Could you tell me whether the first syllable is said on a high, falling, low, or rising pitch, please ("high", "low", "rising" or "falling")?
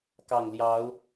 low